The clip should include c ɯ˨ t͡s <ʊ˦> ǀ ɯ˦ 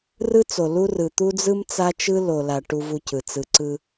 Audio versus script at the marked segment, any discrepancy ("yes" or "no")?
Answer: yes